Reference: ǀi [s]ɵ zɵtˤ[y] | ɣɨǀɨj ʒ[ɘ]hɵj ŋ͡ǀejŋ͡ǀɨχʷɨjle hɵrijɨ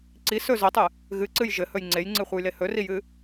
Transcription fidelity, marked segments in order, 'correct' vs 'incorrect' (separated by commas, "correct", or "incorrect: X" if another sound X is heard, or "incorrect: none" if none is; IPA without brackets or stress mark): correct, incorrect: ɨ, correct